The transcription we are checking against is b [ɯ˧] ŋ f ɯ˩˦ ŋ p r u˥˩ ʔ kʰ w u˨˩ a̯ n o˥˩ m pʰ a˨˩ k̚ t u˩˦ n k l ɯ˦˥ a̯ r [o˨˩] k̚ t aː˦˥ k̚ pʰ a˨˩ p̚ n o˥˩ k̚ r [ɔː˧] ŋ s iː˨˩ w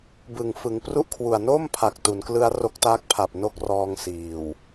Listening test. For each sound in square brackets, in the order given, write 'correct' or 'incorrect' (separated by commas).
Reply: incorrect, incorrect, correct